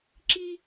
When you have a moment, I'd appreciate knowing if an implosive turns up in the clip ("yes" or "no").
no